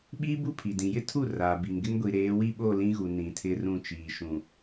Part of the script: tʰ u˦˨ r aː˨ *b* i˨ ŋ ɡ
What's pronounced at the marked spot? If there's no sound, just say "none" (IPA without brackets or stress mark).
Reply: b